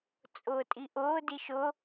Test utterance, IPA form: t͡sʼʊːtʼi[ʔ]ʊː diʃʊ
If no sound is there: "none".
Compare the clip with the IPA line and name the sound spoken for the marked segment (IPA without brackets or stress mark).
ʔ